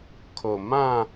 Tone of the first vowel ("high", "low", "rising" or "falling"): low